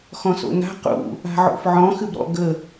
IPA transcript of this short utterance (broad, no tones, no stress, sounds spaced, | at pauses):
x ɔ̃ s o̰ n a̤ q ṵ | a̤ ʕ o̰ f ʕ ɔ̃ x ɨ b ɾ ɔ̰ ɡ ə